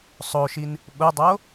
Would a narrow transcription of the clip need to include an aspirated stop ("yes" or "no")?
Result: no